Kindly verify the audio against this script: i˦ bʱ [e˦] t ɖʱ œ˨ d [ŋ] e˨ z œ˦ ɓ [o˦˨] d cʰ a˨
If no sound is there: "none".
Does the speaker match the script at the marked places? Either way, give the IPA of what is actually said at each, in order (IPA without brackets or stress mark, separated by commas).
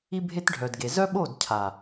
e˦, ɡ, o˦˨